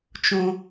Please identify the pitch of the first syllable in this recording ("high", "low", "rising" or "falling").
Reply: high